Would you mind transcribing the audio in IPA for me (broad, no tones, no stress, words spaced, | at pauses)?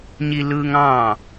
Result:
ɲilɯːŋɑ̃